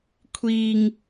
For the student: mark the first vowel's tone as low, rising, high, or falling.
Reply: low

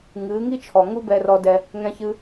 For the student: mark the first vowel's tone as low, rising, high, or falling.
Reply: rising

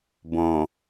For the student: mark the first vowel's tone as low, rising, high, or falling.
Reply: low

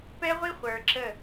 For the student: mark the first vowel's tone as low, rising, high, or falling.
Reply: high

